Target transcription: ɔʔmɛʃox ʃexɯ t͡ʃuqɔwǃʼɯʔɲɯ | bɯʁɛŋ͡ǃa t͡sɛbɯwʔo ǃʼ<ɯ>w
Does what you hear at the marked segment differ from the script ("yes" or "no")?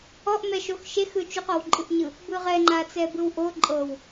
yes